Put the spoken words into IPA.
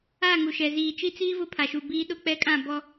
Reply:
a˦˨ ŋ u˨ ʃ ɛ˨ z iː˨ t͡ʃ i˦ t͡s iː˦ v ʊ˦ pʰ a˨ ʃ u˨ b iː˦ ɗ ʊ˦˨ k͡p ɛ˦ kʼ ã˦˨ b ɔ˦

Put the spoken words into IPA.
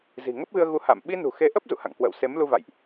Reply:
z i̤˨˩ ŋ ə˦˥ p̚ ɣ ɨ˧ ə̯ ɣ u˨˦ h a̰˧˨ m ɓ i˧ n ṳ˨˩ x e˨˦ ʔ ə˦˥ p̚ z ṵ˧˨ h a̰˧˨ ŋ k w ə̰ː˧˨ w s e˨˦ m l u˧ v a̰˧˨ j ʔ

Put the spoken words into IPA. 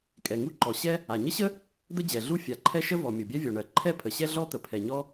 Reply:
kʼ ɛ˩ ŋ u˥ ǃ ɔ˩ ɕ ɛ˥ | a˩ ɲ ə˥ ɕ ə˥ | d̪ ə˥ d͡ʑ ɛ˩ ɮ u˥ fʲ a˩ ǃʰ ɛ˥ ʃ ə˥ v ɔ˩ mʲ o˩ bʲ ɛ˥ vʲ ɔ˩ ɳ ɜ˩ ǃʰ ɛ˥ pʰ ə˩ ɕ ɛ˥ ɮ ɔ˥ t̪ ə˩ pʰ ɛ˩ ɲ ɔ˥

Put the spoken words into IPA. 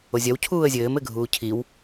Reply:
o zʲ ɐ w cʰ uː ə̯ zʲ ɘː m ɘ ɡʱ uː cʰ i w

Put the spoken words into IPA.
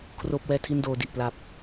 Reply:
kʰ r oː˥˩ p̚ w ɛː˥˩ tʰ i˥˩ n d oː˧ d i˨˩ ʔ p l a˨˩ p̚

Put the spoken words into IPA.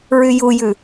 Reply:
ɹ y j u j ʉ

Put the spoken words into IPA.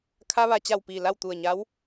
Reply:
kʰ a˧ ʋ a˩ t͡ɕ a˧˩ w p iː˧˩ l a˥˨ w t̪ u˧˩ ə̯ ɲ a˧˥ w

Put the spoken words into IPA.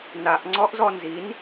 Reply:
n a ʔ ŋ͡ǀ ɔ ʔ z ɔ n z i n

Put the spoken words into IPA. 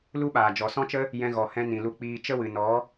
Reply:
l u˦ ɓ aː˨ d͡ʒ ɔ˨ s ɔ̃˦ t͡ʃ ə˦ | j ɛ̃˧ ɣ ɔ˨ h ɛ̃˧ n ĩ˨ l u˧ k͡p iː˧ t͡ʃ ə˦ w ɨ˨ n ɔ˨˦

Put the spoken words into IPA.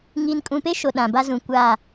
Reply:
ŋ iː˨ n kʼ ũ˨ p e˦ ʃ o˨ ɗ ã˨ b a˦ z ũ˨ kʷ a˦˨

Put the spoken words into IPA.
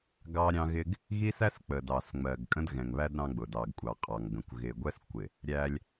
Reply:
ɡ ɑ˦ ɾʲ ɑ̃˦ ɣ ɪ˦ ɡ | ɣ i˦ s æ˦ s k͡p ə˨ d ɑ˨ s ŋ͡m ɜ˨ ɡ kʼ ə̃˦ d ɣ ɛ̃˨ ŋ β æ˦ d ɾ ɑ̃˦ ɡ͡b ʊ˨ d ɑ˨ ɡ kʷʼ ɑ˨ qʼ ɑ˨ ŋ ɡ ə̃˨ kʷ ɣ ɪ˨ ɡʷ ɛ˦ s kʷ ɪ˨ | ɾʲ æ˦ lʲ

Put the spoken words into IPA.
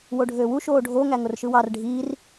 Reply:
w o ɖʱ øː w u ʃ oː ɖʱ o ŋ æ ŋ o r ʃ ɯ w ɑ r ɖʱ iː r

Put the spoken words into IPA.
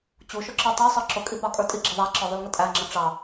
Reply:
t͡ɕ u ʃ ʊ ǁ ə˞ tˤ ə˞ sˤ ə˞ ǁ ʊ kʼ i p ɑ kʼ ə˞ tʼ i ɡ͡ǁ ɪ ðˤ æ ǁ ə˞ ðˤ u l ŋ ə tʼ æ ŋ͡ǁ ə ʈ͡ʂ ɑ

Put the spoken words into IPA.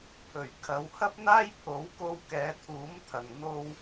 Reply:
pʰ ɵ˨˩ ɥ kʰ ɐ˨˧ w h ɐ˥ p̚ n̪ aː˥ j pʰ o˨˥ w k o˧ w k ɛː˨˧ t̪ʰ uː˨˥ m t̪ʰ ɐ˨ ŋ n̪ o˥ w

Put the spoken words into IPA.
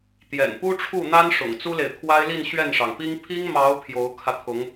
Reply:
t̪ j ɛ̰˨˩ n p u˥ ʈ͡ʂʰ u˥˩ n̪ a˥ n ʂ ʊ̰˨˩ ŋ t͡s u˥ l e˨ ɪ̯ t̪ʰ w a˥ ɪ̯ l i˥˧ n ɕ ɥ ɛ˥˩ n ʂ ɑ˩ ŋ p i˥ ŋ pʰ i˥ ŋ m ɑ˧˥ ʊ̯ pʰ j o˧˥ ʊ̯ kʰ ä˧ t̪ʰ ʊ˧˥ ŋ

